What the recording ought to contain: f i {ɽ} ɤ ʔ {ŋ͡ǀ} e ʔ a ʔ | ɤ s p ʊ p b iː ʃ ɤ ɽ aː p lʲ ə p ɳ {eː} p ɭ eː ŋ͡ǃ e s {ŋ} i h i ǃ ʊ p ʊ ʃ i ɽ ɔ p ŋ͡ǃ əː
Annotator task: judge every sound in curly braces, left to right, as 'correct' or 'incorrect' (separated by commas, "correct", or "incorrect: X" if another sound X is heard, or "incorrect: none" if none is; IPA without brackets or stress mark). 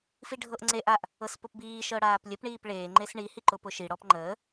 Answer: incorrect: ɖʱ, correct, incorrect: iː, incorrect: ɳ